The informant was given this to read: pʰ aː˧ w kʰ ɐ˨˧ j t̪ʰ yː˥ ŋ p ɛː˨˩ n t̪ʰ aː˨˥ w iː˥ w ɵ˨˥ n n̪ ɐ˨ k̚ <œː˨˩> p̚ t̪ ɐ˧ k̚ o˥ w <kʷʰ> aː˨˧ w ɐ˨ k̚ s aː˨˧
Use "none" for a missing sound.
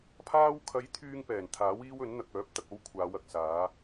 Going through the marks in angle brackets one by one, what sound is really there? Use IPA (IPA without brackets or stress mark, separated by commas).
œː˨˥, kʷʰ